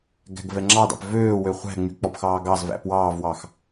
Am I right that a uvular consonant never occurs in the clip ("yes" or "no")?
no